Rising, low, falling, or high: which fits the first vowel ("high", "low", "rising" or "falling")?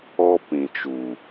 high